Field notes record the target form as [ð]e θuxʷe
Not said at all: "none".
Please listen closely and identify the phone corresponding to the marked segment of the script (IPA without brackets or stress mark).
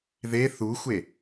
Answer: ð